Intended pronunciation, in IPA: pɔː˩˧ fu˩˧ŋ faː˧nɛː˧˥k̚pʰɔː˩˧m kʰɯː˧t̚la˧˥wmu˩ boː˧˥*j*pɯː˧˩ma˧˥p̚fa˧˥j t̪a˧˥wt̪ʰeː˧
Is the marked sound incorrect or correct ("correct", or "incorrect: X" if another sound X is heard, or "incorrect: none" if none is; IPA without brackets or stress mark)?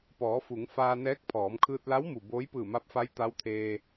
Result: correct